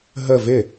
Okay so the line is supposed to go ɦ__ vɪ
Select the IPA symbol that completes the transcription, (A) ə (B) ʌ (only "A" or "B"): A